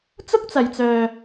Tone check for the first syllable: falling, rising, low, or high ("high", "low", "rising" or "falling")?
high